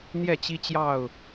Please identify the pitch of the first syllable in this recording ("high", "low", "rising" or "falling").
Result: falling